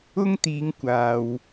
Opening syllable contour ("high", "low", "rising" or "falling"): high